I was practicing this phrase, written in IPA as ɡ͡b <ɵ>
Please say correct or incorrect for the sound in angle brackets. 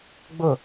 incorrect